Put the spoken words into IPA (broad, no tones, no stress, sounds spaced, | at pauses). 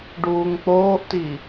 ɖ uː ŋ k͡p oː ʔ t i